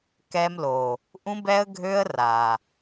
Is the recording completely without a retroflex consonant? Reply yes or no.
yes